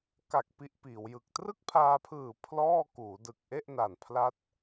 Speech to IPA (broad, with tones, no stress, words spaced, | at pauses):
ka˨˩k̚ pi˦˥ʔpiː˩˦wjɯ˨˩k̚ trɯ˥˩k̚pʰaː˧pʰɯː˨˩ pʰlɔː˥˩ kuː˩˦dɯ˨˩k̚ʔe˥˩ʔna˨˩n pʰla˦˥t̚